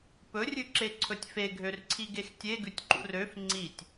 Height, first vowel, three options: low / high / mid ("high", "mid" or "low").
mid